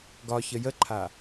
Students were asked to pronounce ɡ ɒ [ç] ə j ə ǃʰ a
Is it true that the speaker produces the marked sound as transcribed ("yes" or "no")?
yes